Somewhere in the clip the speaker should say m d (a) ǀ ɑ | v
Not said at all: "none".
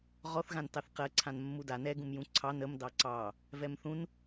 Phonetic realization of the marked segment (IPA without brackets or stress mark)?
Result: ɑ